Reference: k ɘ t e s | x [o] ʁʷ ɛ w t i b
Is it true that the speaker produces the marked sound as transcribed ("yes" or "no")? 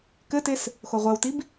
yes